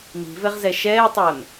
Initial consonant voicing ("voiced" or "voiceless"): voiced